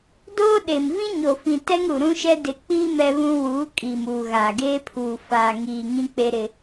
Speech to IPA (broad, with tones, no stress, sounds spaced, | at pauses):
d oː˦ ɗ e˨ m v ĩ˦ ɲ o˨ f ĩ˨ t ɛ˦ ŋ ɾ u˨ ɾ ũ˦ ʃ ɛ˦ d ɪ˨ k͡p iː˦ m ɛ˦ β ũ˦ w uː˨˦ kʼ iː˨ m uː˨ ɣ aː˨ ɡ eː˦ pʰ uː˨ f aː˨ ŋ iː˨ ŋ ĩ˦ k͡p e˦ ɾ ɪ˦